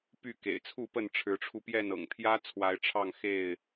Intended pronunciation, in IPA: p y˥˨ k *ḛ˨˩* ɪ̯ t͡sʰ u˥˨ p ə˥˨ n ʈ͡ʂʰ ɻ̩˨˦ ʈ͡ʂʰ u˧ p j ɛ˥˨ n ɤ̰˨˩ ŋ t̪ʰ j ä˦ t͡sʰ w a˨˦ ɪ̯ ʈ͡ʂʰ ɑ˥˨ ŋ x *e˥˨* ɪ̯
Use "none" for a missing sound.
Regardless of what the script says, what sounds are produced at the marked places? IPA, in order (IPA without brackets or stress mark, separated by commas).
ḛ˨˩, e˥˨